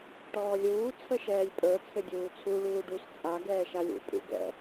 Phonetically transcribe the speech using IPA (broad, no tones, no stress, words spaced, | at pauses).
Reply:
ʈɔːlʲuː t͡sʰəʃɛːlʲpʼə˞ t͡sʰɘdʲuːt͡sʰu ɭuːɖus t͡sʼa ɡɛːʃalʲṵ pʼṵɡɛ̰